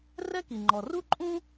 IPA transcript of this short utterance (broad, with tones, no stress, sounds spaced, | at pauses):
r ɛ˦ k i˩ ŋ͡ǃ ɔ˩ r u˥ ǃʼ ũ˥